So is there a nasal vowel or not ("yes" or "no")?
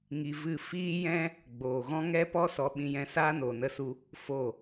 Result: yes